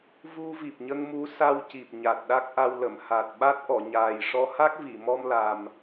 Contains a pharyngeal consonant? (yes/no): no